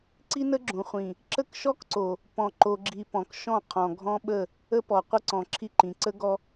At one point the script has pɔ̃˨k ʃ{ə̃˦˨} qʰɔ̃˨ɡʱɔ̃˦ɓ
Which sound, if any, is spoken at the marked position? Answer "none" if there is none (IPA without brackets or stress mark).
ɔ̃˦˨